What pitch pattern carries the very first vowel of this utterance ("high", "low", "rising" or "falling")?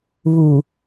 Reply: low